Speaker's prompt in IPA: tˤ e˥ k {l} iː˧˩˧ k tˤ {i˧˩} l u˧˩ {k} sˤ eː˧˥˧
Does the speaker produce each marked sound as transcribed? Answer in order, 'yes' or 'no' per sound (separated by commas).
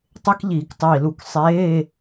no, no, yes